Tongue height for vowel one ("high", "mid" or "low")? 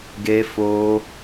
mid